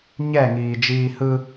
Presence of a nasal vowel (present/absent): absent